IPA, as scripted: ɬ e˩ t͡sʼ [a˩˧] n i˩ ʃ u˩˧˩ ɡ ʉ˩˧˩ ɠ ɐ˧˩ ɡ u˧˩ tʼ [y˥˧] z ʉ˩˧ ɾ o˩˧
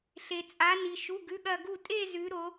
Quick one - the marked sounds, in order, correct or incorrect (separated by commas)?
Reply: correct, incorrect